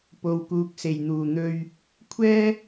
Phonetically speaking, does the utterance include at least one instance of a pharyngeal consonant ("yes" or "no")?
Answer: no